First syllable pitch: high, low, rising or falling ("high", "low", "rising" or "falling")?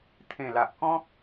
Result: low